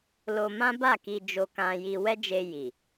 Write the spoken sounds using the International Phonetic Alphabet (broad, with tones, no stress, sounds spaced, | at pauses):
l o˧ m ã˦ b a˦˨ k i˧ d͡ʒ o˧ k ã˧ j i˧ w ɛ˦ d͡ʒ e˧ j i˨